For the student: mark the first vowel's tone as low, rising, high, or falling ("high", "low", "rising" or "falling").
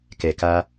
low